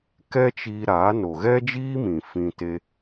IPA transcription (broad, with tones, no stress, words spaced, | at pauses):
kɛ˦t͡ʃiː˧ɾaː˨˦ no˨ɣɛ˦d͡ʒiː˦mĩ˨ fĩ˧ te˧